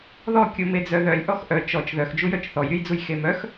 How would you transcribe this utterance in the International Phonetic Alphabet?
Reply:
ð ɔ kʲ u m e d͡z œ ð œ lʲ ʔ ɔ x ʔ œ t͡ʃ ɔ t͡ʃ ð œ x d͡ʒ u j œ t͡ʃ θ ɔ j ɾʲ u j d͡z u j x e m œ x

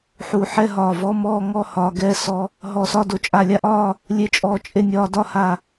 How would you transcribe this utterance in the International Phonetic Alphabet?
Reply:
ħ u˧˩ ħ ɛ˥˨ ɦ ɒː˧˩ v ɔ˧˥˧ m ɔː˥˨ ŋ ɔ˥˨ h ɒː˧ ɡ ɛ˧˥˧ s ɔ˧ | ɦ ɔ˧˩ s ɒ˥˨ d o˧˩ t͡ʃʼ a˧˩ lʲ a˥˨ ʔ ɒː˥˨ | lʲ e˧ t͡ʃʼ ɔː˧˩ t͡ʃʼ e˥˨ nʲ ɒː˧ d ɒ˥˨ h a˧˩

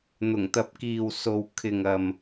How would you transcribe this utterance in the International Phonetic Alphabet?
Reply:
n̪ ʊ˨˩ ŋ t̪ ɐ˨ p̚ k iː˨ w s o˨ w kʰ ɪ˨ ŋ ɐ˨ m

